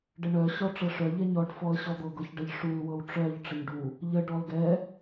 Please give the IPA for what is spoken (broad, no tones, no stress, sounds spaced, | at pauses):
ɖ ə ɳ œ ɕ ɔ ʈ͡ʂ ɤ ʂ œ ʎ ɛ ɲ ɔ ɖ f ɔ ə̯ ɕ ɔ d̪ ɤ ɡ ɤ ç ɖ ə ʎ ʂ u l w ɤ w ʈ͡ʂ œ ʎ ʈ͡ʂ ə ɲ ɖ u | ʎ ə ɖ ɔ l ɡ ɛ